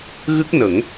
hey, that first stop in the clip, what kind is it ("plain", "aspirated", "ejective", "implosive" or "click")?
plain